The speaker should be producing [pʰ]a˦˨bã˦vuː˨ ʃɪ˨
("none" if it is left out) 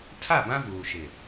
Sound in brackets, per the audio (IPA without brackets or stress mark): tʰ